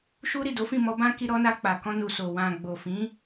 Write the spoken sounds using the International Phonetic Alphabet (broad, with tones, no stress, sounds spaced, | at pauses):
ʃ u˦ ɾ i˦˨ d o˨˦ f ĩ˦˨ m ɔ˧ b ã˦ k i˧ ɾ ɔ˧ n a˧ k͡p a˨ k ɔ̃˧ n u˨ s o˨ w ã˨ ɡ͡b o˨ f ĩ˨˦